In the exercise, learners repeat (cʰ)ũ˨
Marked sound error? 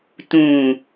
yes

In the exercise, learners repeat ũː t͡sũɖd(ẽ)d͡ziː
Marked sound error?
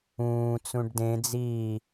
no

